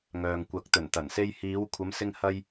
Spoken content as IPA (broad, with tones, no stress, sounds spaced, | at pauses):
ŋ œː˨ ŋ kʷ ɐ˨˥ k̚ t̪ ɵ˨˩ n t̪ ɐ˨˩ n s e˧ j h iː˨˧ w kʷʰ ɐ˨˧ m s ɪ˧ ŋ h ɐ˧ j